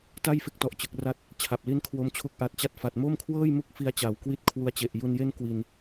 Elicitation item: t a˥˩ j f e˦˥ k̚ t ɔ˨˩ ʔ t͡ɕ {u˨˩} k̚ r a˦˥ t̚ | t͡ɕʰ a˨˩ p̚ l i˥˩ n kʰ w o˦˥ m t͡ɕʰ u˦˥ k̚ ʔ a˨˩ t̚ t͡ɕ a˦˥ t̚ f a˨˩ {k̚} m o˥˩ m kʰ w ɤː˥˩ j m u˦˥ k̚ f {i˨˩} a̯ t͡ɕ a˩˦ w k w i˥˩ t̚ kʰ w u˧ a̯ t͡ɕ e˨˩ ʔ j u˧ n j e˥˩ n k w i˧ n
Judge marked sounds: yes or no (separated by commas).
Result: no, no, no